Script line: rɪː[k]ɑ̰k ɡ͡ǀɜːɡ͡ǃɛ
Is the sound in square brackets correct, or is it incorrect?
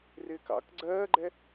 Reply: correct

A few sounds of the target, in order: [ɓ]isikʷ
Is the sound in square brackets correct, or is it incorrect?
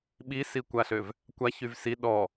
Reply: correct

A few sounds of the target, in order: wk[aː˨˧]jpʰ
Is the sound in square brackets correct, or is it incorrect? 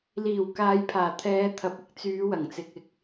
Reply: correct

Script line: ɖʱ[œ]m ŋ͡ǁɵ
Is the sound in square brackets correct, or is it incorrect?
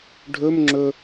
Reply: incorrect: ɵ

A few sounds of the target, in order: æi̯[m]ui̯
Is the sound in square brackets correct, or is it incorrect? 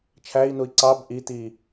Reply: incorrect: n̪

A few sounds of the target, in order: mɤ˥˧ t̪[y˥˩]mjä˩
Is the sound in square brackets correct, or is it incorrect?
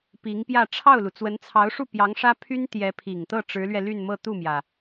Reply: incorrect: u˥˩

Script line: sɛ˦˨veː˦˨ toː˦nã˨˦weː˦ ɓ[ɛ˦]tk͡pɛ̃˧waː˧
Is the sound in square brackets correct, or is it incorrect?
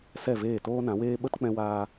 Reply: incorrect: ə˦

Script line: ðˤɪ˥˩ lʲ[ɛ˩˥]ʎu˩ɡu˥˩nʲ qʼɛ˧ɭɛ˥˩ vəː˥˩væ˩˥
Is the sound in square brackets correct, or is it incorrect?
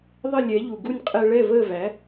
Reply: correct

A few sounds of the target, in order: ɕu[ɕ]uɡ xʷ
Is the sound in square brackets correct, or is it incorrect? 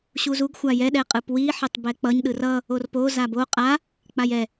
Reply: incorrect: z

